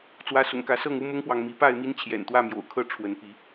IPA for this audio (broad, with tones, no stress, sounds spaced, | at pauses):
t͡s w ä˨˦ s ʊ̰˨˩ ŋ k ä˨˦ s ɤ˥˨ ŋ u˦ m ʊ˦ ŋ p w ɑ˨ ŋ m i˨˦ p a˥˨ ɪ̯ m i˦ n t͡ɕʰ j ɛ̰˨˩ n t̪ w ä˥˨ m j o̰˨˩ ʊ̯ kʰ ɤ˥˨ ʈ͡ʂʰ w ə˨˦ n p i˨˦